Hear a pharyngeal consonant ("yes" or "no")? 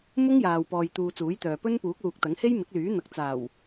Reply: no